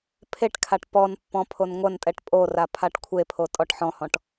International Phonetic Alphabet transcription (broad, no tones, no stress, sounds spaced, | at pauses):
pʰ e ʈ kʰ a ʈ p ɔ n pː ɔ̃ pʰ o n ŋʷ ɐ n tʼ ɛ ʈ pʼ o r a pʰ a ʈ kʷʰ e pʰ o tʼ ɔ ʈ ħ ɔ̃ h ɔ̃ ʈ